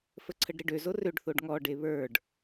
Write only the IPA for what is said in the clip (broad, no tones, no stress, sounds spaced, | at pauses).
f ə ǀʰ ə ɖ ɾ e ɖ ø z o r ø ɖ θ o ɖ ŋ ɔ ɖ e β ə˞ ɖ